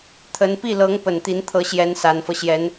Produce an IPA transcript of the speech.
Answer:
t̪ʰ ə˧˥ n p i˥˩ l ɤ˧˥ ŋ p ə˨˩ n t̪ i˧˥ n t̪ʰ ɤ˧˥ ɕ j ɛ˧˥ n s a˨˩ n f ɤ˦ ɕ j ɛ˧˥ n

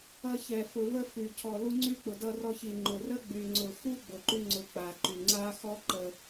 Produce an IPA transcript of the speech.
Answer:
ʌ˧ ç ɛ˨ f ʊ˨ v ə˦ f y˨ cʰ ɔ˨ l u˧ ŋ͡ǀ y˧ k͡p ʊ˨ d ʌ˧ r ɔ˧ ç i˨ ŋ͡ǃ ʊ˨ r ə˦ ɡ͡b y˨ ŋ͡ǀ ʊ˨ x u˦ ɡ͡b ʊ˨ ǃ y˧ ŋ͡ǀ ʊ˨ k͡p a˨ ǃ y˨ ŋ͡ǀ a˦ x ɔ˦ ǃ ə˨

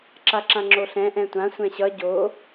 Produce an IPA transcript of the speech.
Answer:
ǁ a ǁ ã ŋ͡ǁ o ɬ ɛ̃ ʔ ɛ̃ tʷ ã sʷ ɛ̃ ɕ ʌ ɟ o

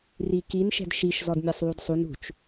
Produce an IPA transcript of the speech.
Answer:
r i k i n ʃ ɛ̤ d ʃ i ʃ z ɔ d mʲ a sˤ w u d sˤ u n ṳ t͡ʃ

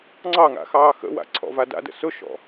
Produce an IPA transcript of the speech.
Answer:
ŋ͡ǀ ɑ ŋ a̰ x ɑː x ə̰ w a̰ ǀʰ ɔ̰ v a d a̰ d ə̰ s ʊ ʃ ɔ̰

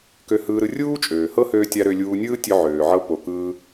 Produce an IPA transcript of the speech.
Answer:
k ø˧ h ɯː˧ ɾ ɯ˧ rʲ uː˥ t͡ʃʼ øː˩ h ɤ˥ h øː˧ tʲ a˧ ɾ ø˧ lʲ uː˧ nʲ ɯː˥ tʲ ø˧ ʕ øː˩ ʕ ɤ˧ p o˩ k ɯː˧

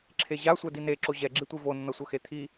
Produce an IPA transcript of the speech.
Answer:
ǁʰ e ʑ a sʷ ɛ d i n e ǁ o ʑ ɛ ɡ͡ǁ i tʷ i v o nː ʌ sʷ ʌ x e t̪ʰ i

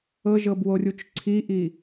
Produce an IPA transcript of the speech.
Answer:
ɤ ʒ ɤ b w o rʲ u t͡ʃ ǀʰ i ʔ i

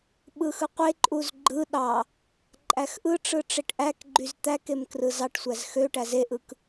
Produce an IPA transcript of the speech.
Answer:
ɓ ɯ x ɯ qʷ e ǃʼ u z ɡ͡ǃ ɯ ɗ ɑ | ǃʼ æ x ʔ ɯ ʈ͡ʂ ɯ ʈ͡ʂ e ʈ ʔ æ k ɡ͡ǃ y z t̪ æ k e m k r ɯ z ɑ ʈ sʷ æ z x ø ʈ æ z e ʔ ɯ k

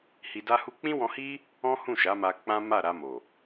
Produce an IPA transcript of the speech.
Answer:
h i˧ d a˦ h u˦ k͡p ĩ˦ w ɔ̃˧ h i˦ | ɔ̃˦ h ũ˦˨ ʃ a˨˦ m a˧ k͡p ã˦ m a˦˨ ɾ a˧ m o˨

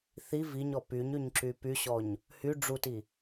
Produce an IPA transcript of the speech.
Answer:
θ i v i ɲ ɔ p y ɲ y ɲ ǁ y p y ɕ ɔ ɲ | h y ɖ͡ʐ u t i

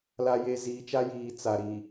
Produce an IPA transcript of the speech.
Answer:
l a˨ j e˨ z iː˨ t͡ʃ a˦ j iː˨ t͡s a˨ ɾ i˨

